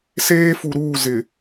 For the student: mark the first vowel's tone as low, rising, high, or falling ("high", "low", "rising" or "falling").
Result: high